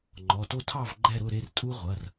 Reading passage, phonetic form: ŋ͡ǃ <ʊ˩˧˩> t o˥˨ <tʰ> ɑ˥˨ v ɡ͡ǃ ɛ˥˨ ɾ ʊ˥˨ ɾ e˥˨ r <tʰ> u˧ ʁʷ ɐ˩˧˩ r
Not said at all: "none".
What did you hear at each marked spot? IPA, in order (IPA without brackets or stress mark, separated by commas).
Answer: ɔ˩˧˩, tʰ, tʼ